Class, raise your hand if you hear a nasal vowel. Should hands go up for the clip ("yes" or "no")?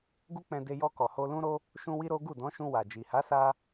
yes